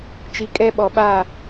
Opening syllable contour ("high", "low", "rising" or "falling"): low